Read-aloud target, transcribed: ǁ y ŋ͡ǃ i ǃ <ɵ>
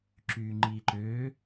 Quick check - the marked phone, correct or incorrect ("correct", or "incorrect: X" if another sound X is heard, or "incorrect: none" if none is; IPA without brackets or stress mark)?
incorrect: ø